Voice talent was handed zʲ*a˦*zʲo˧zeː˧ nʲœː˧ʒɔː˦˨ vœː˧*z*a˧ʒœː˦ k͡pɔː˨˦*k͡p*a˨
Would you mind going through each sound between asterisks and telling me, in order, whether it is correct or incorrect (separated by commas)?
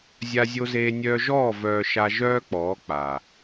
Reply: incorrect, incorrect, correct